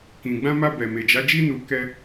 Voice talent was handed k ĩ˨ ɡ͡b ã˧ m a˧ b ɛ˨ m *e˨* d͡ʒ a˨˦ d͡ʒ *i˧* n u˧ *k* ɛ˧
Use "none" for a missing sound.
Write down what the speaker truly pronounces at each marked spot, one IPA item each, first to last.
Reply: e˨, i˦, k

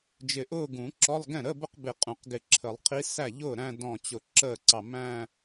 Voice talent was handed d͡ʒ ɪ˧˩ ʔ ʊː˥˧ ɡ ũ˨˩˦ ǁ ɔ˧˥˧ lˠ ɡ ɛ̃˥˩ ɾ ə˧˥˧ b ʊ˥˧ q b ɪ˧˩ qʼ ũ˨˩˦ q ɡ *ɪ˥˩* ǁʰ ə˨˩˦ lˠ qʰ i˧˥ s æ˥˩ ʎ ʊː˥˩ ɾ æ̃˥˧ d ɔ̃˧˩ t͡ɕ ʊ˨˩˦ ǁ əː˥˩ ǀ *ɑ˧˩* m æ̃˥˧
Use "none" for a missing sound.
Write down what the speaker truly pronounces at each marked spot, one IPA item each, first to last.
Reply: ɪ˧˩, ɑ˧˩

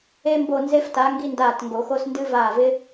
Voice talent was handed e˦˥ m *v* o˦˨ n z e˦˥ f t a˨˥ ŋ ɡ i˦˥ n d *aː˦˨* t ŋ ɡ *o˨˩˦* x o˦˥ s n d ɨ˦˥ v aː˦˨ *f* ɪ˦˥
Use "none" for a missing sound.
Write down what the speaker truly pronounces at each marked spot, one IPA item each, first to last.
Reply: b, aː˦˨, o˨˩˦, v

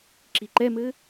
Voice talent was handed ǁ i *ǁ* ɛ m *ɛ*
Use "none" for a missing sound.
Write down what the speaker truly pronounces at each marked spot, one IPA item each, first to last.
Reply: ǃ, ɘ

